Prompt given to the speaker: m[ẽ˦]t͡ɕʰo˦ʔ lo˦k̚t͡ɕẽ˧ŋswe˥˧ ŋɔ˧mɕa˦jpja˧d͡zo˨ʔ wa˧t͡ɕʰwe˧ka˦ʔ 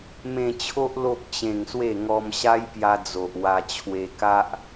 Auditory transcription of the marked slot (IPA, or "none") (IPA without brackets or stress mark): ẽ˧